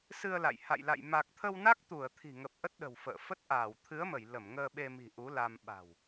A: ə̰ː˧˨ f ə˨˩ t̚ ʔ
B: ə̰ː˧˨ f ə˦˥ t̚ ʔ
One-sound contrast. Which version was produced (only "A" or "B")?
B